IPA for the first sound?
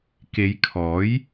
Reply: k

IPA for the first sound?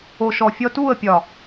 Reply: o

